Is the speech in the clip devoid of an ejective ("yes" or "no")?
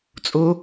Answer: no